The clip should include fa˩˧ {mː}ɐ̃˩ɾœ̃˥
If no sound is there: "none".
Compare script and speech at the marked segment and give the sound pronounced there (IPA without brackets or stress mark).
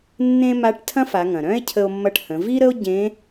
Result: ŋ